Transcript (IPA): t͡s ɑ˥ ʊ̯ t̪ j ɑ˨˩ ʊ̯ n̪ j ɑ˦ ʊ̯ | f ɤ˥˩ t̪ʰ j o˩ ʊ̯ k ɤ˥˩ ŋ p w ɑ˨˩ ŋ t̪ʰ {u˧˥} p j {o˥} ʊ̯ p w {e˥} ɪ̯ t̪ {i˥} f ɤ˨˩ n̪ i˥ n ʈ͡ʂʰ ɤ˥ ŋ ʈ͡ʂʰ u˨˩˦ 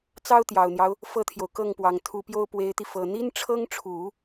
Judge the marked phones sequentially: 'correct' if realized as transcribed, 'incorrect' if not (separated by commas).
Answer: correct, correct, incorrect, incorrect